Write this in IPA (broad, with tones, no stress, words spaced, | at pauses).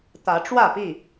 t̪ä˨˦ʈ͡ʂwä˥˨pi˥˨